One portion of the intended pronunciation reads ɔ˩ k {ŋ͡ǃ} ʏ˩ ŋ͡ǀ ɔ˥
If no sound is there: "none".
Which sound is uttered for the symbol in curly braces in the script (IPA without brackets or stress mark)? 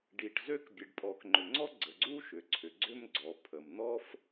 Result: ŋ͡ǃ